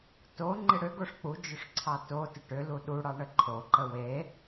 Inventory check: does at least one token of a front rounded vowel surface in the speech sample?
yes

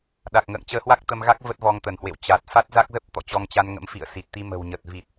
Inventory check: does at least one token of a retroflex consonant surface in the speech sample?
no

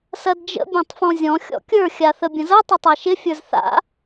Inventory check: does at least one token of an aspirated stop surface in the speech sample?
no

